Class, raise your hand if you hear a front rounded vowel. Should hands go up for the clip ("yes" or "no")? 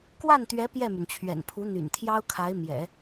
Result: yes